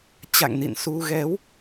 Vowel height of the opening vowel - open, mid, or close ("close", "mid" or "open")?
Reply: open